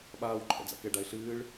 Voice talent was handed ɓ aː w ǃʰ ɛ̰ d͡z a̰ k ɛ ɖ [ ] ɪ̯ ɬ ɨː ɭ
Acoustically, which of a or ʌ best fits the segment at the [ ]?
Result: a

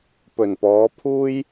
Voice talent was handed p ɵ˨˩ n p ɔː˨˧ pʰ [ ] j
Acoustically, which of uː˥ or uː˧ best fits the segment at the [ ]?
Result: uː˥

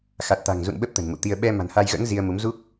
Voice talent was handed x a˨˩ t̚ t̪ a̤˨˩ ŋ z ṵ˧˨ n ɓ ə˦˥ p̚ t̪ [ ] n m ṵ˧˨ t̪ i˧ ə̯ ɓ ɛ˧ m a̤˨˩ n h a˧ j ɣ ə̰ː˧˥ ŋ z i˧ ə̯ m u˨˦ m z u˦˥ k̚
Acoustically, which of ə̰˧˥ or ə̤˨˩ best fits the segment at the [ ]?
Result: ə̤˨˩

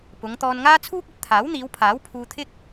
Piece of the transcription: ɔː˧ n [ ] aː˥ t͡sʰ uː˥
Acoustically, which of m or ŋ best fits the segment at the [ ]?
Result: ŋ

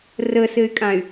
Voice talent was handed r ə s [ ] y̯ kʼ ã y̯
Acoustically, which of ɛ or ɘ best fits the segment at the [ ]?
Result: ɘ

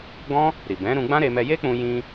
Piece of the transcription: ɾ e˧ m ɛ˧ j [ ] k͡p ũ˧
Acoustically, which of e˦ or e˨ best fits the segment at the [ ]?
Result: e˦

